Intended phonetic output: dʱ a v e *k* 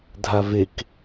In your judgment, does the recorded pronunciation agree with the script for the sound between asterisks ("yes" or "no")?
yes